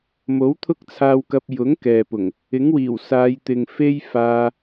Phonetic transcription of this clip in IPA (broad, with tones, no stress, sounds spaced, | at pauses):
m o˨˥ w t̪ʰ ʊ˥ k̚ t͡sʰ aː˧ w k ɐ˧ p̚ j ʊ˨˥ ŋ k ɛː˨ p ʊ˨˩ ŋ | ɪ˨˥ ŋ w iː˨˩ w s aː˨˧ j t̪ ɪ˨ ŋ f e˥ j f aː˧